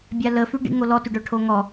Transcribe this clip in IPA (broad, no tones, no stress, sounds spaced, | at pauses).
bʲ a l ə f y ɖ ḭ ŋ o l ɔ t y ɖ œ ʈʰ o ŋ ɔ